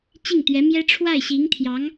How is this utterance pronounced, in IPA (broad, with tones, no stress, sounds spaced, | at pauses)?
t͡ɕ i˥˩ ŋ t̪ ɥ ɛ˧˥ m j ɛ˥ ʈ͡ʂʰ w a˥˩ ɪ̯ ɕ i˧˥ ŋ t̪ʰ j ɑ˧˥ ŋ